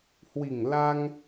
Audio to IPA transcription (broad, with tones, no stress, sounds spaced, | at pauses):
h w i˨˩ ŋ l a˧ ŋ